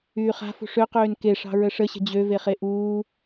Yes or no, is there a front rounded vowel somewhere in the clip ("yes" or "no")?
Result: yes